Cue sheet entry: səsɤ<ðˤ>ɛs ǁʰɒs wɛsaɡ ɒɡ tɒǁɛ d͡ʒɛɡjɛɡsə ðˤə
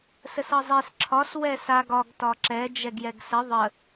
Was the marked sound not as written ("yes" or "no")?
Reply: yes